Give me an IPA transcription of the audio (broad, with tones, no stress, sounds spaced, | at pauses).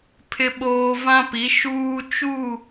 pʰ ɪ˨ ɓ oː˨ v ã˦ p i˨˦ ʃ uː˦ t͡ʃ u˦˨